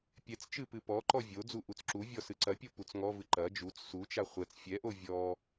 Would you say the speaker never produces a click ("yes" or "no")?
no